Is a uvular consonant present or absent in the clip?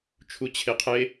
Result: present